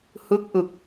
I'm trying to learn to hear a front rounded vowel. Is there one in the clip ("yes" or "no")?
no